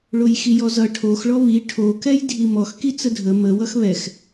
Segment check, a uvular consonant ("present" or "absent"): absent